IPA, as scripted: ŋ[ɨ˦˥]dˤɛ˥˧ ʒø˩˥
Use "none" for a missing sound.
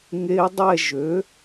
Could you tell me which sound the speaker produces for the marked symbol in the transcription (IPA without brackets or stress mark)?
e˦˥